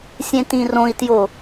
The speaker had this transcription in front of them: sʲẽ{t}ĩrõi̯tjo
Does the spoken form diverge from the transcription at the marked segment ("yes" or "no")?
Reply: no